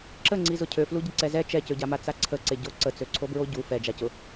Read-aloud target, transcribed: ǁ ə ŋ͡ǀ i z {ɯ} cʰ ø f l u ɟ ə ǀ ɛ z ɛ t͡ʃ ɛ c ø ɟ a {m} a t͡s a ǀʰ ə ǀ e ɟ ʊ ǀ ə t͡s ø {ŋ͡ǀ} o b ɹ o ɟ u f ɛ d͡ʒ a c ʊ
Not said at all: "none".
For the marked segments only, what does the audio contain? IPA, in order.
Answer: ʊ, m, ǀʰ

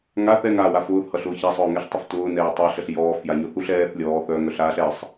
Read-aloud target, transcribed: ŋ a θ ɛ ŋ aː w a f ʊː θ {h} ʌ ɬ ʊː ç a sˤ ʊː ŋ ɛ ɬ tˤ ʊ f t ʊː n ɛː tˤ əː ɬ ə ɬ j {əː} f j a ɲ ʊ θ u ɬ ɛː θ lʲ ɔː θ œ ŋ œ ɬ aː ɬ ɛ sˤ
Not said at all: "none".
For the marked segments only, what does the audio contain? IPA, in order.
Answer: h, ɔː

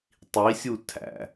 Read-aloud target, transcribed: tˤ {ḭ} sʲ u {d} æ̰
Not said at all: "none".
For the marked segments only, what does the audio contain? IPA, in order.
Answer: i, tʰ

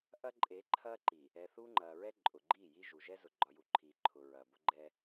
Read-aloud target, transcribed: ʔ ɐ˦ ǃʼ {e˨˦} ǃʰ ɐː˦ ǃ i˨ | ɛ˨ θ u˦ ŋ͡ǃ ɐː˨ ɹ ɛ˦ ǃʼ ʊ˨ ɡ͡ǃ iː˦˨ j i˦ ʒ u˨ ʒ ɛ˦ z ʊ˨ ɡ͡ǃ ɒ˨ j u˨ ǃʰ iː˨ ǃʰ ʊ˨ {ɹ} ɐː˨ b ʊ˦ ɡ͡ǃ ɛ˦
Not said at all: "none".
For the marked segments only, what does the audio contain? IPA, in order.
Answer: e˨˦, ɹ

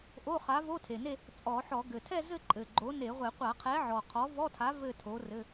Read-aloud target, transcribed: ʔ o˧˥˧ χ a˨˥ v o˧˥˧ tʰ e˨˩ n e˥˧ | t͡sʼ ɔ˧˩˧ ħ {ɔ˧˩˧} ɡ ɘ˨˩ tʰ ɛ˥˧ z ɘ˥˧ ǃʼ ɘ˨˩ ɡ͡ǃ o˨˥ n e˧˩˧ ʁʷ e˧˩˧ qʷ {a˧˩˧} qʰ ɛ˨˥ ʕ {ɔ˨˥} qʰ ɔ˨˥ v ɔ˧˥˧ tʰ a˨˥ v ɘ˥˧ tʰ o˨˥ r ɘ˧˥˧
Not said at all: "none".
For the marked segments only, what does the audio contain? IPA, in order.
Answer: ɔ˧˩˧, a˧˩˧, ɔ˨˩

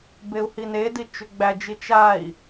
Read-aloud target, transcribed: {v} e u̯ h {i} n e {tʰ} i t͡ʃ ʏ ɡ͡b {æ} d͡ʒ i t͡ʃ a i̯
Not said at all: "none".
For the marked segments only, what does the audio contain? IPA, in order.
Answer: b, i, d, æ

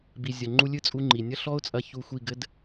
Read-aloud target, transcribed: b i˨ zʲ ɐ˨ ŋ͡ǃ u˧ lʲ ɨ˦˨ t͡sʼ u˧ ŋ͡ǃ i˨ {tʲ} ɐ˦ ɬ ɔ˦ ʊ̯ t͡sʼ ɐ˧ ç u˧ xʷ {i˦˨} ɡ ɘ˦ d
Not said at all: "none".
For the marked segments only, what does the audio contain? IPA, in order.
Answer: nʲ, i˦˨

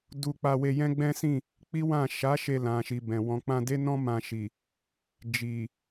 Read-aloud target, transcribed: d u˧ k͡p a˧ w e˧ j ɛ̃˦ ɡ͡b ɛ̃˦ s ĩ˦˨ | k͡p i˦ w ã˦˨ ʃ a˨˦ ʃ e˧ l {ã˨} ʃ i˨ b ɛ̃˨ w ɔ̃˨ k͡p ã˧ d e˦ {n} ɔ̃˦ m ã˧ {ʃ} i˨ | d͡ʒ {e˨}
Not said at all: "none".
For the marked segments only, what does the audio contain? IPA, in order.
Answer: ã˨, n, ʃ, i˨

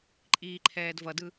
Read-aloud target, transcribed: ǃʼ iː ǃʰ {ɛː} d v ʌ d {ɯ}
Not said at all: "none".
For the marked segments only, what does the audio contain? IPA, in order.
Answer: ɛː, ɯ

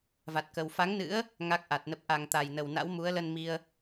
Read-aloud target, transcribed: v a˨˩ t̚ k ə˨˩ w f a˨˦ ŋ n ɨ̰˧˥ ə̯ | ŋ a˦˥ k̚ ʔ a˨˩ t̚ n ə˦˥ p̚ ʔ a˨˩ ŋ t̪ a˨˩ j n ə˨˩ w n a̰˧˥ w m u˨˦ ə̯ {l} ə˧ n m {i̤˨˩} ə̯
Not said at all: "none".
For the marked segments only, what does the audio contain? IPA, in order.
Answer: l, i˧

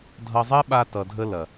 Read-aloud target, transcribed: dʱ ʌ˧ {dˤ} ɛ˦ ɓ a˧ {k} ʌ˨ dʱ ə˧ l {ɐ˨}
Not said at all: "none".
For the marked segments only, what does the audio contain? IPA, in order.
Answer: zˤ, t, ɐ˨

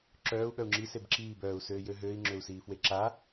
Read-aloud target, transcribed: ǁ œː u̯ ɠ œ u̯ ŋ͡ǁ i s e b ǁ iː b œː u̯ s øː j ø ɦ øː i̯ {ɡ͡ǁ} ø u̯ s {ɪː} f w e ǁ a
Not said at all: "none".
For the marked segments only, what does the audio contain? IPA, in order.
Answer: ŋ͡ǁ, iː

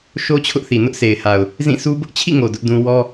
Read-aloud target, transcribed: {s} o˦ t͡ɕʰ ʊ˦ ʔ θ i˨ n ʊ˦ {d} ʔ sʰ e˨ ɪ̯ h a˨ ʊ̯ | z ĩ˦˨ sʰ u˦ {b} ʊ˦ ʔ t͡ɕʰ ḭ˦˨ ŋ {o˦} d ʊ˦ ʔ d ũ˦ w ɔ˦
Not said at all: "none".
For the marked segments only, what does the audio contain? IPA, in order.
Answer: ʃ, none, b, o˨

